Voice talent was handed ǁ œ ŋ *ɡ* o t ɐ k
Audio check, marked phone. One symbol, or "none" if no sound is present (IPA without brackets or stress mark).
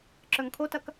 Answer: kʰ